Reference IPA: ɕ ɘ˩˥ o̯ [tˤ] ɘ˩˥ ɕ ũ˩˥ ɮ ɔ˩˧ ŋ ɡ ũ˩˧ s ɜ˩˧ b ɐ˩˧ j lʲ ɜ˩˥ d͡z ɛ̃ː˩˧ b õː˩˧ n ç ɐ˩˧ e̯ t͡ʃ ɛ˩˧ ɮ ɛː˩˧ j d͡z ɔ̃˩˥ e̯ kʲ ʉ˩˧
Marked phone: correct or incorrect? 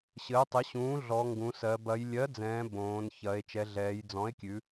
correct